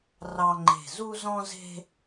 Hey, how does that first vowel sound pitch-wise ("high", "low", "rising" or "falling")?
high